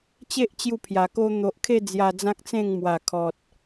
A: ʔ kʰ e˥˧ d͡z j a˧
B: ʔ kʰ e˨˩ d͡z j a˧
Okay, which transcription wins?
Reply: A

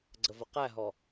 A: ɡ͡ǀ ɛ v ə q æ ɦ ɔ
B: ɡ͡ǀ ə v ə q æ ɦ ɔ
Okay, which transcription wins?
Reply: B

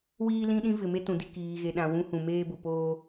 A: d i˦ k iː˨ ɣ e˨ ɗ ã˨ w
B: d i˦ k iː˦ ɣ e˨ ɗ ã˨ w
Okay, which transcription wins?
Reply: A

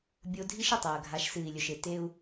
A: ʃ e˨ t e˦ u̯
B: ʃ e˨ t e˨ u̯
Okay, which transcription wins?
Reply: A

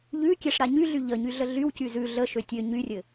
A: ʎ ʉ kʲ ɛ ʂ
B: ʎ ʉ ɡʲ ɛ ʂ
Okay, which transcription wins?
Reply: A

